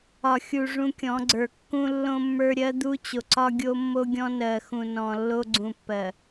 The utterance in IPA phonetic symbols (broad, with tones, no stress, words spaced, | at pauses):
ɒ˨xʲu˨ ʐũ˦kʲɔ̃˨˦ɡ͡ǀə˞˨ kːũ˦lːõ˦mːə˞˦ ɾʲɜ˦d̪u˦t͡ɕo˨ǀɒ˦ ɡʲo˦ mːo˦ɡʲɔ̃˦nɜ˨ xũ˨nɔ̃˨ lːo˦ɡ͡ǀũ˨pːɜ˨